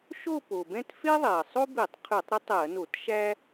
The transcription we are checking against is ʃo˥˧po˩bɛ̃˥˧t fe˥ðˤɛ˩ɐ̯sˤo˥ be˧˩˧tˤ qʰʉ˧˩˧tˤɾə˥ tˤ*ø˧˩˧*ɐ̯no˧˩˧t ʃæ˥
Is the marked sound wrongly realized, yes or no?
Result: yes